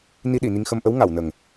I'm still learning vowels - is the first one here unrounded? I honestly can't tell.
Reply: yes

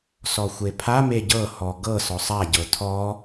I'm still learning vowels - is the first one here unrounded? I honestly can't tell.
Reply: no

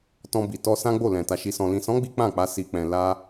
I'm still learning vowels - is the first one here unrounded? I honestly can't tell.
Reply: no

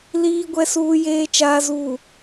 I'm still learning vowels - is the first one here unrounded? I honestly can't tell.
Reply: yes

